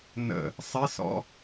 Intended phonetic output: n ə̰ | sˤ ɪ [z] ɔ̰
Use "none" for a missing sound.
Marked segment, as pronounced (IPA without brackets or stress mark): s